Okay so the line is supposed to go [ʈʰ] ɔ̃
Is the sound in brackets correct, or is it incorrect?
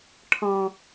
correct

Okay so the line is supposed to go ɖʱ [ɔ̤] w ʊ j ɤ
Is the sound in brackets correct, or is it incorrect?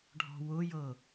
correct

